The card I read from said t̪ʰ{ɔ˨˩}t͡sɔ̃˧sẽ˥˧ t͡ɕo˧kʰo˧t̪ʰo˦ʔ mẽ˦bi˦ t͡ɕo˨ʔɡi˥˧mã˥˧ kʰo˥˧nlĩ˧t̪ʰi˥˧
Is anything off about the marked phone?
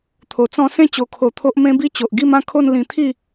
yes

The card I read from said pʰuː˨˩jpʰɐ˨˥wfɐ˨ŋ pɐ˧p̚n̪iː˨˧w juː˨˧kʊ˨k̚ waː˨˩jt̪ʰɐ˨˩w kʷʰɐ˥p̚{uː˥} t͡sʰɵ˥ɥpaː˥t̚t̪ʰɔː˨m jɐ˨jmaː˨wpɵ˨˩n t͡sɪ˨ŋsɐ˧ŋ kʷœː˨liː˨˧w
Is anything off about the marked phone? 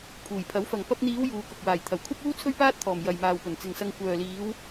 no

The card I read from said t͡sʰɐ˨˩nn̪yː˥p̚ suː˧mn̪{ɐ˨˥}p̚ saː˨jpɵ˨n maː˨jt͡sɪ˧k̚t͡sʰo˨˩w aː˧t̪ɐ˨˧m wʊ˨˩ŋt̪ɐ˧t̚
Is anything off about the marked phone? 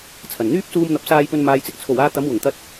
no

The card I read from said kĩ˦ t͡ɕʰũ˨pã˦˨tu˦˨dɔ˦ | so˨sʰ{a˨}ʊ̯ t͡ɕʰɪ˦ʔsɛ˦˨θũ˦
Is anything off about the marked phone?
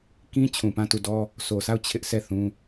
yes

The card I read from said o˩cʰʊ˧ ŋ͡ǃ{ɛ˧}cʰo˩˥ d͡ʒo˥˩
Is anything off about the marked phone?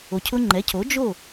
yes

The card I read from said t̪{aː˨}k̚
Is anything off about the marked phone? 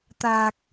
no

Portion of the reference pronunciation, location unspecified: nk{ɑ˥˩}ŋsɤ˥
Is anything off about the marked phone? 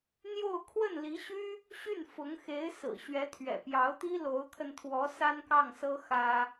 no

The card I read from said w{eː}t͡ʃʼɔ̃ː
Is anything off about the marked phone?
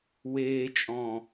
no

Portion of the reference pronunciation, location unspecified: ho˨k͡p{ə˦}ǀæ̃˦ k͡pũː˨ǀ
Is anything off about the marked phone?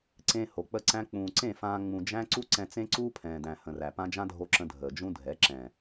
no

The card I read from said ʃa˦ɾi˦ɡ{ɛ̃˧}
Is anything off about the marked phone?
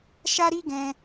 no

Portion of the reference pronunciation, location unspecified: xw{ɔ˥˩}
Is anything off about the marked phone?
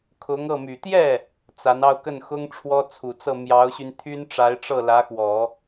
yes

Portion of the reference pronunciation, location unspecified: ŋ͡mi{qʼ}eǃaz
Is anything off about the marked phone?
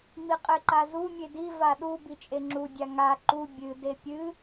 no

